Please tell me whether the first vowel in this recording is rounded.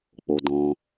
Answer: yes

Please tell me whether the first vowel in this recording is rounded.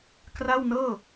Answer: no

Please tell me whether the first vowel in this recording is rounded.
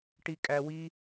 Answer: no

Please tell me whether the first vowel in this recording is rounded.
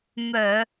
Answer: yes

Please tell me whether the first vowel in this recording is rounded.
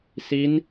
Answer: no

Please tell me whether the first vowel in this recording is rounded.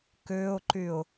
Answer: yes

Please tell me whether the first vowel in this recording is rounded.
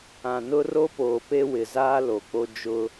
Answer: no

